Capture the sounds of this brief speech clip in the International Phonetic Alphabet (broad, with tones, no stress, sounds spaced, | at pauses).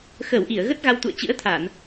x əː˧˩ w ʔ i˧˩ ə̯ ɣ ə˦˥ t̚ ɣ a˧ w t̪ ṵ˧˨ ə̯ t͡ɕ ɨ̰˧˥ ə̯ t̪ʰ a˧˩˨ n